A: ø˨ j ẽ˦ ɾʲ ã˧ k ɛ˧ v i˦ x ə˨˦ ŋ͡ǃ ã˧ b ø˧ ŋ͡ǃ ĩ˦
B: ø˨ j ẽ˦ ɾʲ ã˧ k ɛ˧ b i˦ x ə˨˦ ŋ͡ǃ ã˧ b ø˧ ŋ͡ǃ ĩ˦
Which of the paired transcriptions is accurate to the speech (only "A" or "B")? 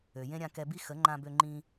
B